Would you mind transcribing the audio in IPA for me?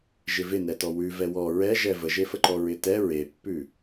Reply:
ʒ ɪ v ɪ n ɛ t ɔ w ʉ v ɛ w ɔ ɹ ɛ ʒ ɛ v ə ʒ e f ə ǃ ɔ ɹ ɪ t ɛ ɹ e pː ʉ

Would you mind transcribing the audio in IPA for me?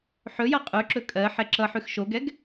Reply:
ħ ɵ j ʌ qʼ ʉ ǁ ɵ kʼ ɜ ħ ɛ ǁ ʌ ħ ʉ x ʃ o ɡ ɛ ɡ

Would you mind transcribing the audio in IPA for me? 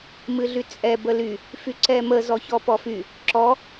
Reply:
m ɨ ɮ y t͡sʼ ɛ b ə l y | f y ǀ ɛ m ə z ɔ ç ɔ p ɔ f y | ǁ ɔ

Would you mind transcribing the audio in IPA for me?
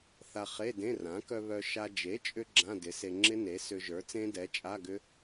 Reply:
θ a˧ χ e˧˥˧ d ẽ˧˥˧ r ã˩˥ k œ˧ β œ˧ ʃ a˧ d͡ʒ e˩˥ t͡ʃʼ ʏ˧ ɡ͡ǁ ã˧˥˧ d ɪ˩˥ s e˧ ŋ͡ǁ ɪ˦˥ n e˩˥ s ʏ˧ ʒ ə˞˩˥ t͡s ẽ˦˥ d ɛ˩˥ t͡ʃʼ a˧˥˧ ɡ ʏ˦˥

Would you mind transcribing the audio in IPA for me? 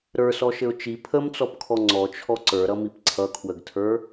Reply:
ɾ ə˞ s ɔ ʃ ɘ ʊ̯ t͡ʃ i pʰ ə m t͡s ɔ p kʰ ɔ ŋ͡ǀ ɔ t͡ʃʰ ɔ ǀ ə˞ ɾ ʌ m i p ǀʰ ʌ kʰ w ə ɡ tʰ ə˞

